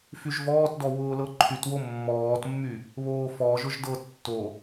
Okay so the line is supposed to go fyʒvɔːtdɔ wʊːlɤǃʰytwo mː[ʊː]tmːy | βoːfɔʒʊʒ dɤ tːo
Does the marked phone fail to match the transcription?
yes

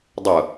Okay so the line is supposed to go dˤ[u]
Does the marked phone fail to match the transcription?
yes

